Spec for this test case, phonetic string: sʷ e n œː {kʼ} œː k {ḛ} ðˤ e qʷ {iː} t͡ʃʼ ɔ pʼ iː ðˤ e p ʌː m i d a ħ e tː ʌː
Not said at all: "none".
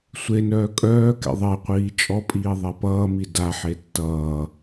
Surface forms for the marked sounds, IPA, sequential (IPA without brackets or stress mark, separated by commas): kʼ, ḛ, iː